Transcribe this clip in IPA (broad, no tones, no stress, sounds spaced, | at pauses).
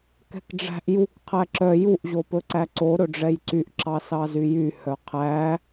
k ɛ̤ k ɖ͡ʐ æ̤ ʔ j u k qʰ æ ǁ œ j u ʔ ʑ o p ɵ ǀ æ ǀ o ɾ ɵ ɖ͡ʐ ɛ j ǀ y ʔ ǁ ɑ s ɑ z y j y h œ qʰ æ